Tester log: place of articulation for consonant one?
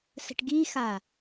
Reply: alveolar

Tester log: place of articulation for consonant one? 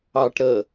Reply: retroflex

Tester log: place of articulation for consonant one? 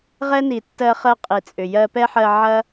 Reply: uvular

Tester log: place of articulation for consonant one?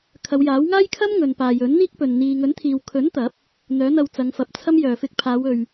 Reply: velar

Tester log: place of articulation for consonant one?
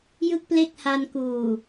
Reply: palatal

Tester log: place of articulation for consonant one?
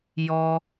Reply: palatal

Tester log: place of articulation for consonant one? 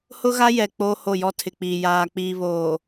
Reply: glottal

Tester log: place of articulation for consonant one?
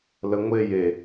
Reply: alveolar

